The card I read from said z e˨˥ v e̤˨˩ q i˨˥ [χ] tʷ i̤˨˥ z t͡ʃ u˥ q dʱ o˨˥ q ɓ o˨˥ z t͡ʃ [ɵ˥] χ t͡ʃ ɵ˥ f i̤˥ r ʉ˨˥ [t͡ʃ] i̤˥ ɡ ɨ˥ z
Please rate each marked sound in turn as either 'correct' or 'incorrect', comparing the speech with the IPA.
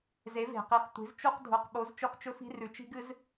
correct, correct, correct

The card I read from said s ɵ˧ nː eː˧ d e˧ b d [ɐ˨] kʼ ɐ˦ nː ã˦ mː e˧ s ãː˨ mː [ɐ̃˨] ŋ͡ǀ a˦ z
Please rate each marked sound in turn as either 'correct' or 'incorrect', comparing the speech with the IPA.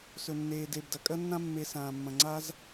correct, correct

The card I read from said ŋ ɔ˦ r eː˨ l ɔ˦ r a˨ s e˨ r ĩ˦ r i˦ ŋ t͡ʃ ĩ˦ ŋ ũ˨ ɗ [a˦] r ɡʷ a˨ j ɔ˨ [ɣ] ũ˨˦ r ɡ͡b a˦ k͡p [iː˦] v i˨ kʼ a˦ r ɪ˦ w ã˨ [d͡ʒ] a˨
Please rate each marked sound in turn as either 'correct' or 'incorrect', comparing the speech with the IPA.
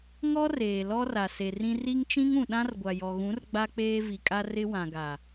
incorrect: ã˦, correct, incorrect: eː˦, incorrect: ɡ

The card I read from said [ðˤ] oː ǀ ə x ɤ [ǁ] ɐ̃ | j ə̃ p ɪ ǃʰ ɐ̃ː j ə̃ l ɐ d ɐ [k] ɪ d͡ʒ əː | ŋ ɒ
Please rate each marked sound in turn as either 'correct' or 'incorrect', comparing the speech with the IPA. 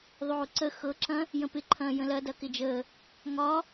correct, correct, correct

